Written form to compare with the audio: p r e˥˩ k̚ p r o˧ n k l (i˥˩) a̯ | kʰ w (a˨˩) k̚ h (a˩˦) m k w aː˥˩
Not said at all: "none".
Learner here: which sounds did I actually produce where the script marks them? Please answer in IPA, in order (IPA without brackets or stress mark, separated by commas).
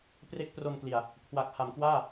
i˨˩, a˨˩, a˩˦